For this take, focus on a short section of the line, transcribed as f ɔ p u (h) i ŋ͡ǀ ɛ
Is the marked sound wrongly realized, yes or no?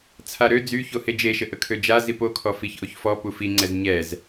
yes